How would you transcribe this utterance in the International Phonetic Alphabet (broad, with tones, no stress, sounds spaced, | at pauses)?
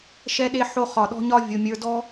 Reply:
ʃ ɛ˧ ɗ e˧ ħ o˧ χ ɒ˨ ɗ ɔ̤˧ ɲ ɒ˧ vʲ o˨ mʲ ə˞˨ d ɔ˧